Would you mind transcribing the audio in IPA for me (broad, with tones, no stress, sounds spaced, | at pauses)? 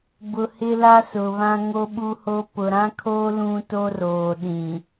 b ʊ˨ h ɪ˦ l a˦ s ʊ˨ β ã˦ ŋ o˦ ɓ u˦ h o˦ p ʊ˨ ɾ ã˦ kʰ oː˦ l ũ˦ t o˦ r oː˨ ɗ ĩ˨